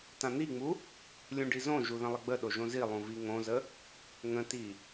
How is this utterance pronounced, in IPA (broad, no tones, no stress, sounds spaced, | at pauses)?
t ã n̪ i ŋ͡m u | lʲ ũ ɖ i z õ ʒ u ð ə̃ lˠ ə ɡ͡b ə ɗ o ʒ õ z i lˠ ũ v i ŋ õ z ə | ŋ ə̃ t i